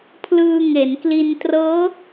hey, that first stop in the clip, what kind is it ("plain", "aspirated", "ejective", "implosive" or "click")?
aspirated